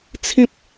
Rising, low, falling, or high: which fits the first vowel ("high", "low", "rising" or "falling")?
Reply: high